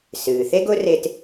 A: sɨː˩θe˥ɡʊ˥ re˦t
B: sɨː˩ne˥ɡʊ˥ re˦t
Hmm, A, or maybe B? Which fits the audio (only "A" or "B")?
A